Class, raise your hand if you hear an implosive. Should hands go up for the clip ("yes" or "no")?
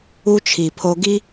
no